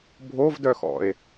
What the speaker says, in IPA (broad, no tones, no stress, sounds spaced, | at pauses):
bʱ o v d œ x ɔ̰ e̯